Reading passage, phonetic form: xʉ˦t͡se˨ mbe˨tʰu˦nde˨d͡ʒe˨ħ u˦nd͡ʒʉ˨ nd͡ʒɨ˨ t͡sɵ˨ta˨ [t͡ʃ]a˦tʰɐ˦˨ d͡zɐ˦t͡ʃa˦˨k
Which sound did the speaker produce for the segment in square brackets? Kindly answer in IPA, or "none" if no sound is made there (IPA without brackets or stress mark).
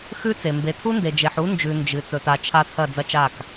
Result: t͡ʃʰ